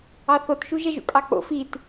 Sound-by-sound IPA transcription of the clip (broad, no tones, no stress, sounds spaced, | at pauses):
ɑ θ o t ʃ u ʒ ɛ ʒ ṵ kʼ ɑ k͡p o̰ f i t